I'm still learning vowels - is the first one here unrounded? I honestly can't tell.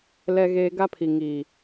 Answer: yes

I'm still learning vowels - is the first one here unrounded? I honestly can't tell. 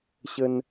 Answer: yes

